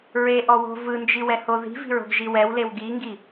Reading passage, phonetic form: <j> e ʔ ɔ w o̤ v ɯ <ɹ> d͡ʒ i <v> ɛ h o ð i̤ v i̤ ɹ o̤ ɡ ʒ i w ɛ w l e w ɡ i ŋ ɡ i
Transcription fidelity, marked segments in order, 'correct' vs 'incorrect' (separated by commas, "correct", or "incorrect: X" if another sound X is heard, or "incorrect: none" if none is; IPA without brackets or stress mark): incorrect: ɹ, incorrect: n, incorrect: w